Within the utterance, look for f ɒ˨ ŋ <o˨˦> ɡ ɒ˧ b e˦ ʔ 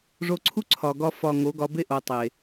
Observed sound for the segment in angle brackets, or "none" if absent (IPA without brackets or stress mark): o˨˦